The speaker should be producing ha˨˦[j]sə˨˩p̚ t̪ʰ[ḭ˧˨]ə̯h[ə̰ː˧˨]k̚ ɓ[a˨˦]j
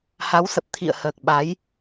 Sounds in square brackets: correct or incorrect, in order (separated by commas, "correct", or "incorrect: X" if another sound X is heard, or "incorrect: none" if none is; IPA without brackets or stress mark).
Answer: incorrect: w, correct, incorrect: əː˨˩, correct